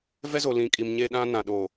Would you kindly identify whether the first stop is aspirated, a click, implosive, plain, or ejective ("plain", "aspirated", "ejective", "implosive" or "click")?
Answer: ejective